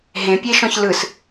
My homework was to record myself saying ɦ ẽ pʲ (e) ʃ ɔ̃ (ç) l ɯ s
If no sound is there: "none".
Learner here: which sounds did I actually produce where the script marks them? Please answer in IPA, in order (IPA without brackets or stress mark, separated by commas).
e, ç